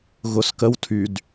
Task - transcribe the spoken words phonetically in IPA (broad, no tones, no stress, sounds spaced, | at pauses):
ɣ ʊ s k ə w tʰ y d